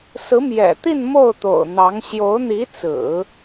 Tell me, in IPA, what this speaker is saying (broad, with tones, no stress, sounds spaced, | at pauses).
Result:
s ɹ̩˧˥ m j ɛ̰˨˩ t̪ i˥˧ n m o˥˩ ʊ̯ t̪ o̰˨˩ ʊ̯ n̪ ɑ˧˥ ŋ ɕ j o˧˥ ʊ̯ n̪ i˧˥ t͡s ɹ̩˨˩˦